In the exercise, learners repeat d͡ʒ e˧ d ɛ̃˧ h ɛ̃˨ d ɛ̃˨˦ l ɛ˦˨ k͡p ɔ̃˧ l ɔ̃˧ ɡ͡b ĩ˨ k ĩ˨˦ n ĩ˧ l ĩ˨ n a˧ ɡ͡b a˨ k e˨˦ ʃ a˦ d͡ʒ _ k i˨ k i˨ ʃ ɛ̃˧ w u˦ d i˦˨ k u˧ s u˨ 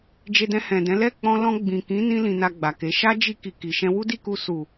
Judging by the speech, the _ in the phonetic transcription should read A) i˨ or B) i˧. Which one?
B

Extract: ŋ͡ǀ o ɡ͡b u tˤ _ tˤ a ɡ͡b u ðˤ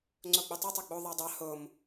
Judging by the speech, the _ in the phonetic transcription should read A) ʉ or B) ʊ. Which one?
B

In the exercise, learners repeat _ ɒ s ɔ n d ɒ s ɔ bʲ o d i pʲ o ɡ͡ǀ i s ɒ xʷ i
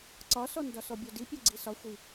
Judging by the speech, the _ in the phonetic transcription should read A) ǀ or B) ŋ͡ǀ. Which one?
A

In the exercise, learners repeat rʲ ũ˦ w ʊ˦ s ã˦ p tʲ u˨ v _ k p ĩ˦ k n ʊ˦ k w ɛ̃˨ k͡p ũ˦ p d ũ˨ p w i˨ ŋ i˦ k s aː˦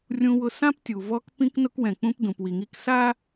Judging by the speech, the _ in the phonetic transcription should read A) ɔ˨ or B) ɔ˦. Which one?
B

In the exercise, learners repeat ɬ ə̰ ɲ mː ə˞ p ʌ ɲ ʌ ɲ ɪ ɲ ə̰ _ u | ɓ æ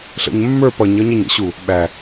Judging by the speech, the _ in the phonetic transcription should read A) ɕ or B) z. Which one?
A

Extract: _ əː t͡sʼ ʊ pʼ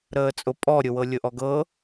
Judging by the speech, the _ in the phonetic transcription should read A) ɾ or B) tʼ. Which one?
A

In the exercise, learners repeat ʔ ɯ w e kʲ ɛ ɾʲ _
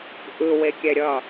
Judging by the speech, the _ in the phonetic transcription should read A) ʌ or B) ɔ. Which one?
A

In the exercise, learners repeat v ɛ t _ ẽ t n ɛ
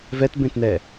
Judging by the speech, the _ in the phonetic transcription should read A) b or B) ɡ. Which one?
A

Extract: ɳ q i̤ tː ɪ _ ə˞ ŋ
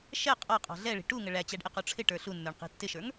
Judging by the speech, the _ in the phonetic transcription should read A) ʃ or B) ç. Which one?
A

